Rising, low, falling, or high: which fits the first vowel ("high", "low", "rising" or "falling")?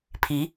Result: rising